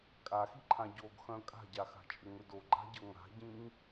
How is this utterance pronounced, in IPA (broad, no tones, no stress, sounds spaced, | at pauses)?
kʼ a x i ǃʰ ã ɟ o ɡ x œ̃ kʼ a̤ ɟ a x a̤ t͡ʃʼ ʏ ŋ ʏ d o ɡ͡ǃ a̤ ɟ ɤ ŋ a̤ ɟ ĩ ŋ